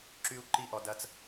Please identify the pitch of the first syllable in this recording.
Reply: high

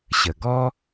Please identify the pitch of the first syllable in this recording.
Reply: low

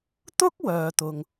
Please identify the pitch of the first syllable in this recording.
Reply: high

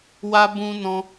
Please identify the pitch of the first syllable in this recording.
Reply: high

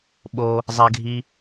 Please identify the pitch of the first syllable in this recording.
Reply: high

